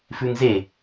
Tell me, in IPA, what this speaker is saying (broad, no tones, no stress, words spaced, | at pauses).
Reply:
fʉŋze